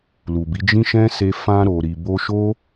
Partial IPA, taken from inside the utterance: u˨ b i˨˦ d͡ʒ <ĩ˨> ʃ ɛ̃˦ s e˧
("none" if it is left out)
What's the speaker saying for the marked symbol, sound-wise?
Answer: ĩ˦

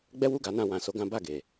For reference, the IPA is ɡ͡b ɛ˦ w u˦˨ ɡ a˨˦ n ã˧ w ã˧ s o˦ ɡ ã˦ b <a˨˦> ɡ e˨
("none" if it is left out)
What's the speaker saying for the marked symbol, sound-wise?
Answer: a˦˨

